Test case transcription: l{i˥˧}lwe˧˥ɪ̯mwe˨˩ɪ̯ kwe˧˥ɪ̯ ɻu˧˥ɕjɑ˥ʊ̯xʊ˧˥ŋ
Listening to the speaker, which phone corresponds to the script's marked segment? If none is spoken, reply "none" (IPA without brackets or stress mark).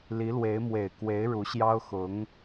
i˧˥